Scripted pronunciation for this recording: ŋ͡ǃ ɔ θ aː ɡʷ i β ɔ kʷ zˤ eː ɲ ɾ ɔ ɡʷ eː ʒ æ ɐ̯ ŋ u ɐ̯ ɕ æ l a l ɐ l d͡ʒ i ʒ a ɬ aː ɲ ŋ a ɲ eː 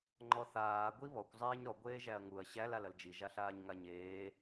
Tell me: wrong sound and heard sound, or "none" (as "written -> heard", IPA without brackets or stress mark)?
none